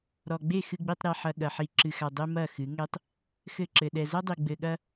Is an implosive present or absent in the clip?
present